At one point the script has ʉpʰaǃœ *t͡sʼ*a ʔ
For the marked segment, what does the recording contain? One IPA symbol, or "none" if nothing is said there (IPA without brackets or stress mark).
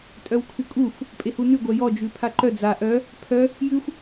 d͡z